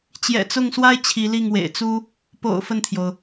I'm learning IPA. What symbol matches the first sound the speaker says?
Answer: t͡ɕ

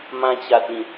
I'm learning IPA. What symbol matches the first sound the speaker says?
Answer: m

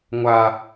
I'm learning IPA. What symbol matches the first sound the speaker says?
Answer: ŋʷ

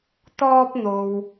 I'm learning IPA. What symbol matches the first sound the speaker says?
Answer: t̪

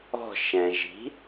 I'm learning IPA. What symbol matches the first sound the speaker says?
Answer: ɔ̤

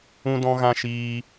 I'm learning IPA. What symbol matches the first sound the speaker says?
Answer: ũ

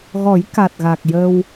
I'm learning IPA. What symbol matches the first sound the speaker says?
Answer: ɣ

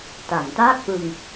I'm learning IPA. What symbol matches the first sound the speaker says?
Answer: t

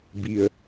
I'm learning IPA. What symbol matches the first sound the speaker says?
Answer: b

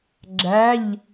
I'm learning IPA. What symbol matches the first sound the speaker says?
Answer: ɡ͡ǁ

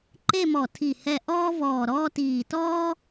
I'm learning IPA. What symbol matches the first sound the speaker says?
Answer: ǃ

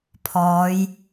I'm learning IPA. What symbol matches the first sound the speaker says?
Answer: pʰ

